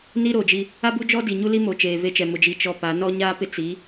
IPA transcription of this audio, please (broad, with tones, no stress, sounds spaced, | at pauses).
n i˦ ɾ oː˨ d͡ʒ i˦ | a˦ b u˦ d͡ʒ ɔ˦ d i˨ ɲ u˦ l i˦ m o˨ t͡ʃ eː˨ v e˦ t͡ʃ ɛ˨ m ʊ˨ d͡ʒ i˨ t͡ʃ ɔ˦ p a˨˦ n ɔ˦ ɲ aː˦ p ɪ˦ t͡s i˨˦